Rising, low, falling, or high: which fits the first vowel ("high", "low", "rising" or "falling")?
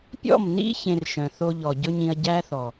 falling